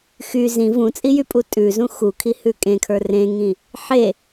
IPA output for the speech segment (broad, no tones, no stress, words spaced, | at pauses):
xy zĩ vũt͡sʼijypʼu tʼʉzũ xukʰi hʉkʼẽkʰə˞ rẽŋĩ | ħe